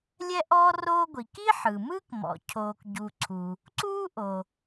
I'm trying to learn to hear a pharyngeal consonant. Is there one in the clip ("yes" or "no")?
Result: yes